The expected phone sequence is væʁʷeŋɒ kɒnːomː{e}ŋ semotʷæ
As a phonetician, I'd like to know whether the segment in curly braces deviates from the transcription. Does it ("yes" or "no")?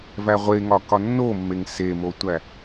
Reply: no